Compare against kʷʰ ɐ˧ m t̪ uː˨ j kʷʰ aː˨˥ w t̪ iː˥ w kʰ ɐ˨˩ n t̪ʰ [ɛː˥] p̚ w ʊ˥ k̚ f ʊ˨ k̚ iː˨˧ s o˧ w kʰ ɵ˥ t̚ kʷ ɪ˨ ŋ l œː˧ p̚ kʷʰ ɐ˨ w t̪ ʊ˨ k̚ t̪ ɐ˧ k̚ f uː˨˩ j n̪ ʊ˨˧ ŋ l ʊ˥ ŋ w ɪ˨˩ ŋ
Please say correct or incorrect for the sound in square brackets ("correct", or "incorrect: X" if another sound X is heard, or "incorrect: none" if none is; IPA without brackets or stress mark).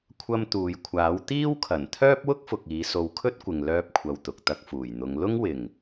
incorrect: œː˥